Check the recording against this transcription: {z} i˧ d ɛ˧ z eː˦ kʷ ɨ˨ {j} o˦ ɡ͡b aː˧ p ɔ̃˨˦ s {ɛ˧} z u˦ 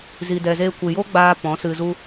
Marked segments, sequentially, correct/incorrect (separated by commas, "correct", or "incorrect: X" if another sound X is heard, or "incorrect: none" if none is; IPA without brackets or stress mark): correct, correct, incorrect: ɨ˧